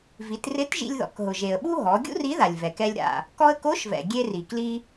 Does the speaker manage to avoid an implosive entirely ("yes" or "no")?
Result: no